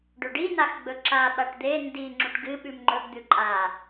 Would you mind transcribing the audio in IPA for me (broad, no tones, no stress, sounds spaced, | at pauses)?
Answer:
ɖ ɵ ɖ i n a x ɡ͡b ɵ ǁ a ɓ a ʈ d̪ e n d i ŋ͡ǁ u ʈ ɡ ɨ ɓ ʉ m ŋ͡ǃ ɵ ɡ d̪ ʉ ǃʼ a